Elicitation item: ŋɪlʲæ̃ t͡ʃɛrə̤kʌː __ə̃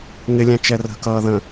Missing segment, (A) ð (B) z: A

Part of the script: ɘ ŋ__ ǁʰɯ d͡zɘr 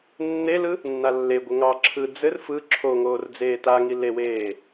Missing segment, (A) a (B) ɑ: B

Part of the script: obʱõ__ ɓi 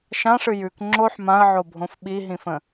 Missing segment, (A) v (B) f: B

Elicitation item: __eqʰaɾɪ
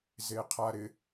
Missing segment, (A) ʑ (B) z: B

